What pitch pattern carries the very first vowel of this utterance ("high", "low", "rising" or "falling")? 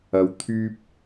low